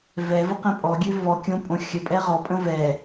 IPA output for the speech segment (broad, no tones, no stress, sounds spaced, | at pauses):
v ɛ v ə q ɛ̃ pʼ ɔ ɡʲ ø v ɔ kʲ õ pʼ õ xʲ ə pʼ ɛ ʁ ɔ pʼ ə̃ v ɛ